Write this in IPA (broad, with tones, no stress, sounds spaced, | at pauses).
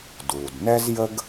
d uː˩ d n ɛ˥ z j ə˥ ɡ